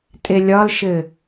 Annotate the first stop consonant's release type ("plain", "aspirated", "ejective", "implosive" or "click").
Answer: ejective